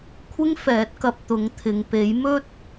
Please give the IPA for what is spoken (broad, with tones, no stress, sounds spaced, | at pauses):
kʷʰ ɪ˥ ŋ f ɛː˨˥ t̚ k ɐ˧ p̚ t̪ ʊ˨˥ ŋ t̪ʰ ɪ˨ ŋ p e˨˥ j m ɵ˥ t̚